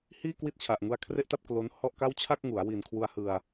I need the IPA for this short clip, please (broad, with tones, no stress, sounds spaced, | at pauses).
h iː˥˩ k w i˥˩ t̚ t͡ɕʰ a˨˩ ʔ ŋ u˧ a̯ kʰ r e˥˩ ʔ t a˥˩ p̚ k l o˦˥ n h ɔ˥˩ ʔ k a˥˩ w t͡ɕʰ a˥˩ k̚ ŋ u˩˦ a̯ w i˨˩ n kʰ w u˧ a̯ h ɯ˧ a̯